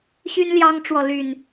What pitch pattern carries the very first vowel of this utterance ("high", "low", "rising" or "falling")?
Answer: high